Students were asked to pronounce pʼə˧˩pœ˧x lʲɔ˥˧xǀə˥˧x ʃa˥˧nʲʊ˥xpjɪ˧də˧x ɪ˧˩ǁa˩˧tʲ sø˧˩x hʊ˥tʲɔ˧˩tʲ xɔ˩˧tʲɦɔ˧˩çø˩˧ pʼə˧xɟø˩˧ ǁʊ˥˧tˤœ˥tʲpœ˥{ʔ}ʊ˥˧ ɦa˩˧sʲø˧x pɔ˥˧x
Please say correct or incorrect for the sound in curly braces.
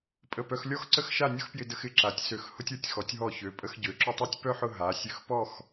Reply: incorrect